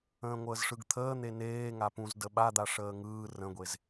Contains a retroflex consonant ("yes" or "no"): yes